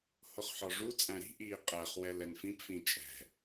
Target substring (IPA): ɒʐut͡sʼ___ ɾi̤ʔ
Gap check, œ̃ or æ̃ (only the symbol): æ̃